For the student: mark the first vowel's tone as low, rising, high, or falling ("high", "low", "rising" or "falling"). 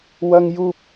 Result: high